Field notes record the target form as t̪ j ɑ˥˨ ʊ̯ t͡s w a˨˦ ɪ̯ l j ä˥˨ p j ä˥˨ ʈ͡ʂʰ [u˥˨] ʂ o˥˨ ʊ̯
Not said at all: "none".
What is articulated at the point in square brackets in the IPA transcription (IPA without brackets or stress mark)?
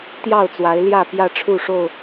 u˥˨